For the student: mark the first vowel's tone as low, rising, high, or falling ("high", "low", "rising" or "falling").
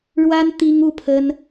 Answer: high